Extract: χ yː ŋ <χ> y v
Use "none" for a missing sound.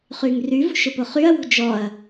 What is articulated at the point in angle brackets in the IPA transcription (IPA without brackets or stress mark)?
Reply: r